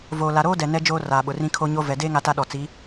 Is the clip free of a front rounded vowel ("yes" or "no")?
yes